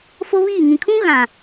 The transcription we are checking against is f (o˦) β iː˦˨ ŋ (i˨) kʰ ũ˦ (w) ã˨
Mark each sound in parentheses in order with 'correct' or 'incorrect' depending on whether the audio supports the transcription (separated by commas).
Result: correct, incorrect, incorrect